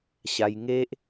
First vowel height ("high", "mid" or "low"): low